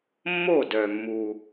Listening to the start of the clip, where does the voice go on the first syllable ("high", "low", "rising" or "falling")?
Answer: falling